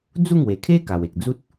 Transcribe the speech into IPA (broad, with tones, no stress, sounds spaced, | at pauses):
d͡z u˥˧ ŋ w e˨˩ kʰ e˦ k a˨˩ w e˨ k̚ d͡z u˦ t̚